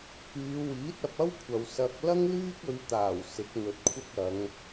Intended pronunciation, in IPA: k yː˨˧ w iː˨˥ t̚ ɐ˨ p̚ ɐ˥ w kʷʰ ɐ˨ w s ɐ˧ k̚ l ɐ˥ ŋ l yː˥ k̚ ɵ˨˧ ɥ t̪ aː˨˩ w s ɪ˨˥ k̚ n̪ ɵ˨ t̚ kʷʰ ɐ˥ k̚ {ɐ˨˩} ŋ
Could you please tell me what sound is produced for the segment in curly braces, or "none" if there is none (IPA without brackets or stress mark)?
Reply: ɐ˨˧